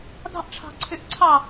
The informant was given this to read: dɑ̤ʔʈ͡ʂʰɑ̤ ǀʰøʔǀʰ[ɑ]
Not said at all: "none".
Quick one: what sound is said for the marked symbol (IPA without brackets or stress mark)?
ɑ